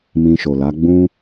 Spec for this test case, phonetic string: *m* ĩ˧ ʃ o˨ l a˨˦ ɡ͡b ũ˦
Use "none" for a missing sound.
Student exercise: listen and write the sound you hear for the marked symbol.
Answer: m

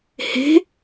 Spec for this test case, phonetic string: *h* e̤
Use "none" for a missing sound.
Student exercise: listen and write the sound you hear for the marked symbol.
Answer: h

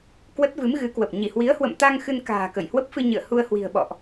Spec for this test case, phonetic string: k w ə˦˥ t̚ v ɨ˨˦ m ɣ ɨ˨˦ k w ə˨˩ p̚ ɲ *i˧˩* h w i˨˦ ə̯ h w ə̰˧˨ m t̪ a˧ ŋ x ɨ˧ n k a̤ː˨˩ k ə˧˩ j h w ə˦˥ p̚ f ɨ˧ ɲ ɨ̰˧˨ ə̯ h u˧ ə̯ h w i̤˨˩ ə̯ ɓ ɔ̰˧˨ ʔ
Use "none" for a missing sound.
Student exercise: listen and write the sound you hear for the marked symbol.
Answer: i˧˩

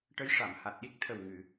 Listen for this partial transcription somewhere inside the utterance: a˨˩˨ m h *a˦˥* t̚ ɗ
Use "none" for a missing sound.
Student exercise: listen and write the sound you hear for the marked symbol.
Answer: a˨˩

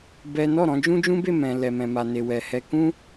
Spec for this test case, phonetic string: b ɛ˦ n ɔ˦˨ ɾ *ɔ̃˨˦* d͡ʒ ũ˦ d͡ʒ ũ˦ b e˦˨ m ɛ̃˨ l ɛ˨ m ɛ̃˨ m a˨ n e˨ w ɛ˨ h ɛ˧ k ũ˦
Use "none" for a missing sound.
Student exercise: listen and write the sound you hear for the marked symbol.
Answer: ɔ̃˨˦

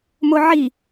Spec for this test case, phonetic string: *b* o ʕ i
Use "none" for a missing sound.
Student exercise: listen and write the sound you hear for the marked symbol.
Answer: m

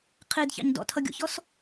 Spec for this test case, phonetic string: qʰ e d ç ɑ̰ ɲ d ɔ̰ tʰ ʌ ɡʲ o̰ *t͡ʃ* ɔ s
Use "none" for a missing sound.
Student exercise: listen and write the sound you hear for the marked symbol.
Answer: ç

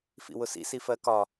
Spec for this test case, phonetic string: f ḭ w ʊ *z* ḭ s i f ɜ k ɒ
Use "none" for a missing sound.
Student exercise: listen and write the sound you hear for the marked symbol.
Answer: s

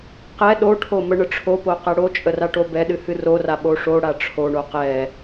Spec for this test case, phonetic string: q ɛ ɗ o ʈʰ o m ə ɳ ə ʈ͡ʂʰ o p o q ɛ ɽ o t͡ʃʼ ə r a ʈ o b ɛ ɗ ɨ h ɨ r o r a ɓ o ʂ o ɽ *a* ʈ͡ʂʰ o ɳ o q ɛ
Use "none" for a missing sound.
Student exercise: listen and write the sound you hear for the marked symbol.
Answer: a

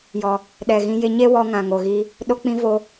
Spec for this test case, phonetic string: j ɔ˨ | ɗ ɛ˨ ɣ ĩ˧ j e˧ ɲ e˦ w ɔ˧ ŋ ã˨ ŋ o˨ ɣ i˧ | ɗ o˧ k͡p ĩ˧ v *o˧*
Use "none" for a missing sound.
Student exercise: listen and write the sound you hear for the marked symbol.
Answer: o˧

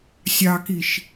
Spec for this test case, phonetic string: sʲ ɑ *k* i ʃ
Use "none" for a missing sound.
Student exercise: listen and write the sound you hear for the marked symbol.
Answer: k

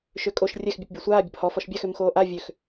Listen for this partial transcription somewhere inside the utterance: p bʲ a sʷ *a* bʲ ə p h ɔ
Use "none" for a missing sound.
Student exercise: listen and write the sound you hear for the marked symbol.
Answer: aː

